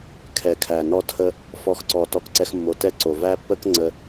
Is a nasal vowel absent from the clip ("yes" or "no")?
yes